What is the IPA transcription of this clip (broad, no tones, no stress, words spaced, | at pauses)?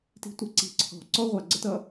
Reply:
ti̤tʷɛǀi̤ ǀʰɔ̤ǀɔ ʁʷɑɡ͡ǀətʌ